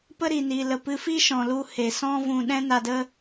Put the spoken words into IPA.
p ə˦ ɾ i˨ n iː˨ l ə˨ p ɨ˧ f i˦ ʃ ɔ̃˨ l u˧ h e˨ s ɔ̃˦ v ũ˧ ɗ ɛ̃˦ n a˧ d ə˦

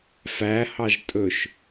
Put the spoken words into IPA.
f æ h ɑ ʒ tʼ ɵ ʃ

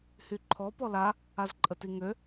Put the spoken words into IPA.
h y ǃʰ ɔ p ɔ l a | a z ǃʼ ə t i ŋ ø

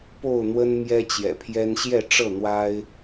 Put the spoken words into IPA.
p o˥˨ ʊ̯ n̪ w ə˦ n m j ɛ˦ t͡ɕ j ɛ̰˨˩ pʰ j ɛ˦ n ɕ j ɛ˥˨ ʈ͡ʂ ɤ˥˨ n̪ w a˦ ɪ̯

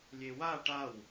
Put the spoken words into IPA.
lʲ e w a ʈ a w

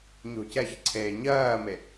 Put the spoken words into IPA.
ɲ o̤ c ɛ ç ǀʰ eː ɲ ɜː m e

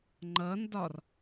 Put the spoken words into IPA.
ŋ͡ǃ ʌ n d ɒ r

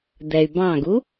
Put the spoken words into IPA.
d̪ ɛ y̯ b ɑ̃ ɡ u

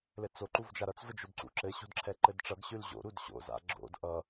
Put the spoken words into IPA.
l ɘ t͡s o ǃ u v d͡ʒ a ɾ ʌ t͡s v ɘ d͡ʒ o d ǀ ṵ ǁ ɘ ɕ o̤ d ǁʰ ɛ ǃ ɘ d ʈ͡ʂ ʌ ɡ ɕ ʉ l ʑ o̰ ɾ u d ɕ o̰ z a̰ ɡ͡ǁ o̰ d ʔ ʌ

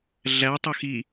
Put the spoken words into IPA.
ɮ æ tˤ o x i

